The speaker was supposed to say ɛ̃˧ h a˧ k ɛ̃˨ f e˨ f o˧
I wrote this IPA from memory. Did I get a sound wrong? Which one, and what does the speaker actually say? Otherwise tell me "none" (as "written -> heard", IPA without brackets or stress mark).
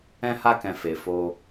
none